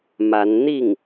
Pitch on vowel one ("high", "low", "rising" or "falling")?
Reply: rising